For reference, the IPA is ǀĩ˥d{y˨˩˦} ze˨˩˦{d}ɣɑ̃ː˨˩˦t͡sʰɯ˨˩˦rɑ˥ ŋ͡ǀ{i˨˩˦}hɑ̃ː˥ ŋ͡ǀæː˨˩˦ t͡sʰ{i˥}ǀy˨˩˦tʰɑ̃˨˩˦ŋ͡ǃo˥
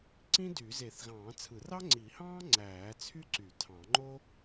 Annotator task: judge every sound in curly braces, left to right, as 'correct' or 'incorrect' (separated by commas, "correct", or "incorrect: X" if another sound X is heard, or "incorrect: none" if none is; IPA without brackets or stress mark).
correct, incorrect: θ, correct, incorrect: y˥